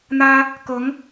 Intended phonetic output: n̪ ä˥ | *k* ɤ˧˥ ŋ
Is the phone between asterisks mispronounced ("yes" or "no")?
no